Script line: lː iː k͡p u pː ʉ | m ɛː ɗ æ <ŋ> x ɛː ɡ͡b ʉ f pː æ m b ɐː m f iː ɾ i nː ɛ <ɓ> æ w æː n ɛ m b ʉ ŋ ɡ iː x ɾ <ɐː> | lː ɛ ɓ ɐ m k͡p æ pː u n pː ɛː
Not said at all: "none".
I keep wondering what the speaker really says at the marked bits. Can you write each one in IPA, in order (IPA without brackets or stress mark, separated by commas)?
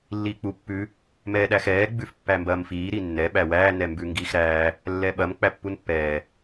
none, ɓ, æː